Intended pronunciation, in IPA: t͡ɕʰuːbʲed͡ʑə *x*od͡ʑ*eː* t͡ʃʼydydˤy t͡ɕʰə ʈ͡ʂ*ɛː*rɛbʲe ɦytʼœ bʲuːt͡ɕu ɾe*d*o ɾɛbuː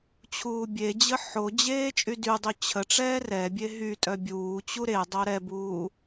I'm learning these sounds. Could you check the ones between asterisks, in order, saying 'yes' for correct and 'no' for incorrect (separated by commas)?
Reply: no, yes, yes, no